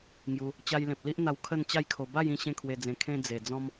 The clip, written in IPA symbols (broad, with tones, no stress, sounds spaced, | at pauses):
ŋ j u˧ | t͡ɕ a˧ j l ẽ˨ p̚ l i˦ ʔ n̪ a˧ w kʰ ə˥˧ n t͡ɕ a˥˧ j kʰ o˧ b a˥˧ j ĩ˧ ɕ ẽ˥˧ kʰ w e˧ d͡z ẽ˧ kʰ ẽ˧ d͡z e˨˩ d͡z ɔ̃˦ m